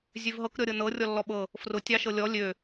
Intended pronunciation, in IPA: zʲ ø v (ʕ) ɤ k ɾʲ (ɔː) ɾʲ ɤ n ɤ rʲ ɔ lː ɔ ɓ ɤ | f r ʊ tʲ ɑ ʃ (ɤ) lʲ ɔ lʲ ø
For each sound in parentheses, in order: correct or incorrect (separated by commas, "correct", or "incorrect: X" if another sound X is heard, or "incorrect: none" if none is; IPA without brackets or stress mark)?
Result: incorrect: ɦ, incorrect: ɔ, correct